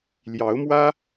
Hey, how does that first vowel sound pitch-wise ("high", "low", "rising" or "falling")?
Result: rising